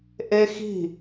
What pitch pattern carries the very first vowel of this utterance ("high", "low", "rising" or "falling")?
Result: high